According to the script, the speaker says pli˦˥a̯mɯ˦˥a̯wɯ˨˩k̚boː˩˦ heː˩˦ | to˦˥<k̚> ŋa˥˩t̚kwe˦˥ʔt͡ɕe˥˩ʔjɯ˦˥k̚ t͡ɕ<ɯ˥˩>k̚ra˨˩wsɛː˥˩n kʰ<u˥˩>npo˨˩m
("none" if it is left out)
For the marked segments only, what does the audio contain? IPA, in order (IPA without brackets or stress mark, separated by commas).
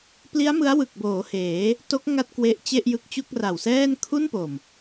k̚, u˥˩, u˥˩